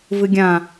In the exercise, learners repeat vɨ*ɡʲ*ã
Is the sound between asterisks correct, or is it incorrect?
correct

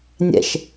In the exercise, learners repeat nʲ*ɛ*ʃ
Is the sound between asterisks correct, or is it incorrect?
incorrect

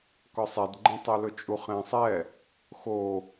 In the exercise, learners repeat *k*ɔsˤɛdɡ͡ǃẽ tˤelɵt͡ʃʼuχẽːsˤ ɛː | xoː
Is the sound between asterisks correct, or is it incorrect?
correct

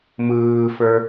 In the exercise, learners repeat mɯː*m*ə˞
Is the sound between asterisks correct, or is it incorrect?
incorrect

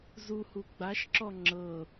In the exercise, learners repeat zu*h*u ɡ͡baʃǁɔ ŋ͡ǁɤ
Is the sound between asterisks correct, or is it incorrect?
correct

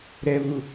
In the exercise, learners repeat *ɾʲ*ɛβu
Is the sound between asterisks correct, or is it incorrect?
incorrect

